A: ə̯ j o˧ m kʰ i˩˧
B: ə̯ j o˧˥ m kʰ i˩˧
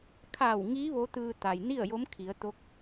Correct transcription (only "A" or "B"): B